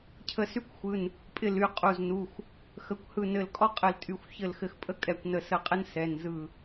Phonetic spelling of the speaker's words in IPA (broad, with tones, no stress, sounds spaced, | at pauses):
cʰ ə˧˩ s y˦ kʷ xʷ ɯ˩˧˩ n | pʼ ɪ˧˩ l y˧˩ qʼ u˩˧˩ z n u˩˧˩ xʷ | x ə˩˧˩ kʷ h ɯ˧˩ n ɘ˧˩ l kʼ ɔ˦ qʼ ɘ˧˩ l tʼ y˧˩ xʷ ç ɘ˧˩ l x ɘ˧˩ x pʼ ə˦ kʼ ɛ˧˩ kʷ n ə˧˩ s ə˧˩ qʼ ɘ˦ n s ɛ˩˧˩ n z ɯ˧˩